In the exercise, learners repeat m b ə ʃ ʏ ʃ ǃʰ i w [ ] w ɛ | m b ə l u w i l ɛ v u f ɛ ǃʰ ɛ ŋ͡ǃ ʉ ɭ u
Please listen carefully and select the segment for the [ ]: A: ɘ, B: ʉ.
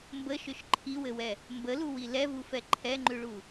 A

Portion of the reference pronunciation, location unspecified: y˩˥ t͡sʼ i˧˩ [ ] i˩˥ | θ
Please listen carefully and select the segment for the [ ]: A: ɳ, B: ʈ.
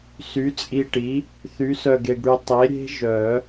B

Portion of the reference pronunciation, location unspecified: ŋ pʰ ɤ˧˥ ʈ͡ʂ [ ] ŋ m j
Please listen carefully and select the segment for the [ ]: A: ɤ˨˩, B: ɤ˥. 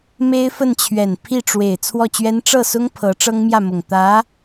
B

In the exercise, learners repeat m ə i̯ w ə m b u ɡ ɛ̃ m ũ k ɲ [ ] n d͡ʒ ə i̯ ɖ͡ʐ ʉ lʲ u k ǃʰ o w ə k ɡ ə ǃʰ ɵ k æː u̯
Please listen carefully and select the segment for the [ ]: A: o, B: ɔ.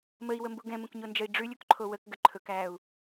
A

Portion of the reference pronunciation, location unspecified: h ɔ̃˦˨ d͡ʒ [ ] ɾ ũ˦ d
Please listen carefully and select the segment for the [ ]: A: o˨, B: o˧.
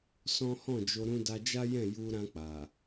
B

